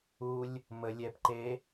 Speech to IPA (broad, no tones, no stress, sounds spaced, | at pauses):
u lʲ | m ə lʲ ɛ p ǃ e